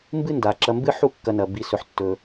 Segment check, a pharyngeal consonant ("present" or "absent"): present